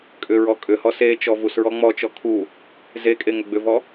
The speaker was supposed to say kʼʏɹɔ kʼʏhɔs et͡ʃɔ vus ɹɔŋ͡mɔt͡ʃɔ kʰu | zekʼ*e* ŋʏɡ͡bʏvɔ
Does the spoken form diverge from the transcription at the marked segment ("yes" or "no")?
no